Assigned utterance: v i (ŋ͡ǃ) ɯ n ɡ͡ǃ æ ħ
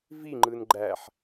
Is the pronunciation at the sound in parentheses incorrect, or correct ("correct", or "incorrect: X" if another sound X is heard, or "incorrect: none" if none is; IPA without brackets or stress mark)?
correct